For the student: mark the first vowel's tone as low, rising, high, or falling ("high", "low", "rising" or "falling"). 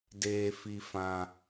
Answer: high